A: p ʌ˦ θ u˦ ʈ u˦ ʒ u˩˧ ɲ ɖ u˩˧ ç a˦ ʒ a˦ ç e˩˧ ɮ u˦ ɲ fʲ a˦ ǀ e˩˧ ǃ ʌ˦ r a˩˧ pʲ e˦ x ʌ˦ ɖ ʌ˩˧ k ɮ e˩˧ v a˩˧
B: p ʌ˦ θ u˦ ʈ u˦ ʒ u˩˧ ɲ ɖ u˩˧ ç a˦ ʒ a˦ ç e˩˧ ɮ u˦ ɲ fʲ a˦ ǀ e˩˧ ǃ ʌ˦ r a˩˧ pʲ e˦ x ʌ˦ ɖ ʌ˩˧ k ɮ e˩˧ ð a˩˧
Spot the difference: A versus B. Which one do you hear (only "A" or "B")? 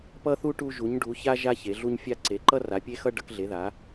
B